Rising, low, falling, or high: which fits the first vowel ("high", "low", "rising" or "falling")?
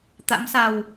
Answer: rising